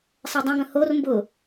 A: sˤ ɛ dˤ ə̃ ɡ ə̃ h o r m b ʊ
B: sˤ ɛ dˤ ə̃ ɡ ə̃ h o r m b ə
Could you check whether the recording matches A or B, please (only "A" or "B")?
A